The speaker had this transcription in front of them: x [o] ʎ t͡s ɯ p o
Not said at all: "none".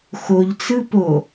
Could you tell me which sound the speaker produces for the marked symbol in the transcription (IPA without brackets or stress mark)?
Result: o